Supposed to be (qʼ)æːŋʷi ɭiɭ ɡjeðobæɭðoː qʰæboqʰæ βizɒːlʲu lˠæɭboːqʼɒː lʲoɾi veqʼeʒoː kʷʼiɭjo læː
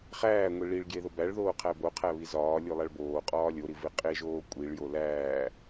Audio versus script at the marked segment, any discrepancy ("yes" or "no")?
yes